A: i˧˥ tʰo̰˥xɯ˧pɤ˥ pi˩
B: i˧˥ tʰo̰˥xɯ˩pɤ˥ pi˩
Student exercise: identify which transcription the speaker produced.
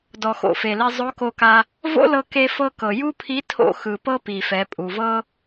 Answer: B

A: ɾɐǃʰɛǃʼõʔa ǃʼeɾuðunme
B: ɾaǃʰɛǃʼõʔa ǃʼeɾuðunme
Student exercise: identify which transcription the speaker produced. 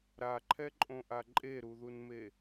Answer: B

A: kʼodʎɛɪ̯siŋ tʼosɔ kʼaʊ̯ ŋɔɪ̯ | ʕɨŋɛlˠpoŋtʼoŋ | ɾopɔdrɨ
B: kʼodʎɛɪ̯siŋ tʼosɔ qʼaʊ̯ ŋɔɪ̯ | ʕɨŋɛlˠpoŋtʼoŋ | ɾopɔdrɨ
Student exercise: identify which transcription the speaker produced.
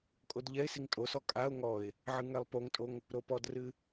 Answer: A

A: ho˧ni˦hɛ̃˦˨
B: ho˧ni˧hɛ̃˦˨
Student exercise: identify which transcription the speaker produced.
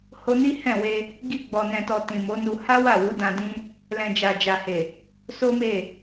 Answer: A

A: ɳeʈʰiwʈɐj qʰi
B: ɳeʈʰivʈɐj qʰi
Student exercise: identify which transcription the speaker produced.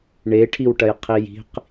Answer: A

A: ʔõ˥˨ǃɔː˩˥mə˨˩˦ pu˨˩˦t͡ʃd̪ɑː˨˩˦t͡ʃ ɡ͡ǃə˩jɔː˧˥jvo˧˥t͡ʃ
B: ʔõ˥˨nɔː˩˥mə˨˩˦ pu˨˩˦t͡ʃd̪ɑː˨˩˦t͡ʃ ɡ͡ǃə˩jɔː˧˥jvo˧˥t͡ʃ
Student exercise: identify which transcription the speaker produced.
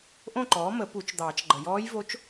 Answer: A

